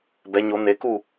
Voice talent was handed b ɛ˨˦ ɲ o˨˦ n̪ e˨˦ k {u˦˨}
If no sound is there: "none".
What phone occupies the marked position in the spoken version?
u˦˨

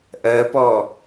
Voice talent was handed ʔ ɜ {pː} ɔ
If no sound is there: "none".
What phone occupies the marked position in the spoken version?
p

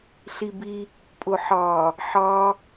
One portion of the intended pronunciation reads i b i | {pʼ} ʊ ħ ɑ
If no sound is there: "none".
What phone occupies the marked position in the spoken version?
pʼ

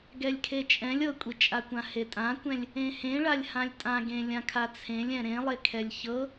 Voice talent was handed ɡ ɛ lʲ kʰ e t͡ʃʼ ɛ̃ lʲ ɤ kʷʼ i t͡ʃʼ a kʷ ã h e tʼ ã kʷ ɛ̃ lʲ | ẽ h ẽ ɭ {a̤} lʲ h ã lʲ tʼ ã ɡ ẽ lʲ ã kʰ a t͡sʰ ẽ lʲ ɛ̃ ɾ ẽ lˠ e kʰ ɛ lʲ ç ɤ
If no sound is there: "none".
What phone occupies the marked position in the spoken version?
a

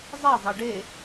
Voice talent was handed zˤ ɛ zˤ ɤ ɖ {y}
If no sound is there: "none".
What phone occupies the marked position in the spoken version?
e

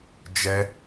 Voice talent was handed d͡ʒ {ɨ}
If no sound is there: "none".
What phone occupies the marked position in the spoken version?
ɛ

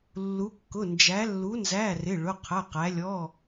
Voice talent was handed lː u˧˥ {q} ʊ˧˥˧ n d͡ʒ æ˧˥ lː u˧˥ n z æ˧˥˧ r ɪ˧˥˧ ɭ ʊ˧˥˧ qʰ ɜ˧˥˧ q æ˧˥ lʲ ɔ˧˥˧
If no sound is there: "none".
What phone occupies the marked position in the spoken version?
kː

